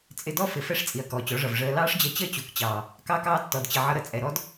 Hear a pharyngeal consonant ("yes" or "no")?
yes